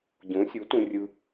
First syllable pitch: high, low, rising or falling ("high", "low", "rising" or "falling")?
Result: rising